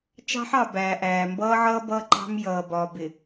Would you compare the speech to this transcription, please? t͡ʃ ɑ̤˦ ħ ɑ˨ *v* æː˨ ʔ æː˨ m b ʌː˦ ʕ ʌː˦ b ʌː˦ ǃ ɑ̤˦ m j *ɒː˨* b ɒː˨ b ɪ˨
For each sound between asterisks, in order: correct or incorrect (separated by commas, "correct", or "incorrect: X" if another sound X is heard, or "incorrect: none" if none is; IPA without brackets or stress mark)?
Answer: incorrect: b, incorrect: ʌː˨